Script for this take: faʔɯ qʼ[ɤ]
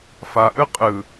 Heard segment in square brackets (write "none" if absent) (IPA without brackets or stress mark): ɯ